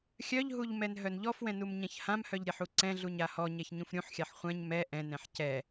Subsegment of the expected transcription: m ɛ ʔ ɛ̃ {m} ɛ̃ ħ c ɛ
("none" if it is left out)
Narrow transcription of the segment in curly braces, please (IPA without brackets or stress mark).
n